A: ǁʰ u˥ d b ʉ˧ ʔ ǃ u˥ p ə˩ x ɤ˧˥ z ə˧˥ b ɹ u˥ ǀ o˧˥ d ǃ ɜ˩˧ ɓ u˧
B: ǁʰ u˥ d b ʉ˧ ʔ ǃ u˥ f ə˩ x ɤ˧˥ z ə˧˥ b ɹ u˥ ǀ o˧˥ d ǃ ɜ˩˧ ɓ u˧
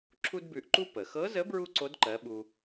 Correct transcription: A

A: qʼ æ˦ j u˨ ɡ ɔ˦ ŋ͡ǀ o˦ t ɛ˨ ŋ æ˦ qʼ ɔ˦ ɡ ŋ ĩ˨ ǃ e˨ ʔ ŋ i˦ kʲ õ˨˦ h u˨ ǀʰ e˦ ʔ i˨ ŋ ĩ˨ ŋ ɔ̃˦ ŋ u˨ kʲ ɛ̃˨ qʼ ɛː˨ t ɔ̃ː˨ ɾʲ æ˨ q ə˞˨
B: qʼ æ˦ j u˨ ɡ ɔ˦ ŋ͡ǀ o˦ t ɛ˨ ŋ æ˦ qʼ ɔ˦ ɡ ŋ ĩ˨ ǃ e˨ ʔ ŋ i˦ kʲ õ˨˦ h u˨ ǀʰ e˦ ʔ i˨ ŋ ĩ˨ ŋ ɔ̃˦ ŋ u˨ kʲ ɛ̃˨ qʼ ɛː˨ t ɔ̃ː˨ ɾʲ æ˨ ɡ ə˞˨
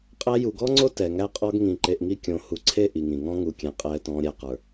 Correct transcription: A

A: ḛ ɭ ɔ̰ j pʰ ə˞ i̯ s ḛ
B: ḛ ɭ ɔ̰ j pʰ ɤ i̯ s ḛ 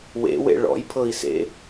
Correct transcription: B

